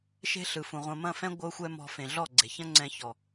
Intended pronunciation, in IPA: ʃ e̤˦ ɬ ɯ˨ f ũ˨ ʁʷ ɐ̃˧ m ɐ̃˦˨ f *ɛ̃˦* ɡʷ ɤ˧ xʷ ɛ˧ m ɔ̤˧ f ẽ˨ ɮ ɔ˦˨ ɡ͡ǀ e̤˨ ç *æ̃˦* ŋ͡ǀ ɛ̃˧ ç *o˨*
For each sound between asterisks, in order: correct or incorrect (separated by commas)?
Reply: correct, incorrect, incorrect